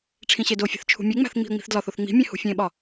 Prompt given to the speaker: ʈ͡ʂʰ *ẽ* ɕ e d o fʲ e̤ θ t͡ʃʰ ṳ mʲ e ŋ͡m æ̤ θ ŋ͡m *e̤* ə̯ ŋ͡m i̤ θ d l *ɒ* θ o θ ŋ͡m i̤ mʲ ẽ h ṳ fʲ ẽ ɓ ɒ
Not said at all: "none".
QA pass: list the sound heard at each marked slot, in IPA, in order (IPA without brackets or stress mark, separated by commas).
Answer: ĩ, i̤, ɒ